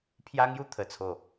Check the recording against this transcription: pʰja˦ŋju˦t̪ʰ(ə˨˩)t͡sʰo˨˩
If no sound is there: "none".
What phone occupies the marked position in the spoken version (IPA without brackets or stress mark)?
ə˨˩